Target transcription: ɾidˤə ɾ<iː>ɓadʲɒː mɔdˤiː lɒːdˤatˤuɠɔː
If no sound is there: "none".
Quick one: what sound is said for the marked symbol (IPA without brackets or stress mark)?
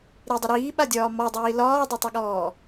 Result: iː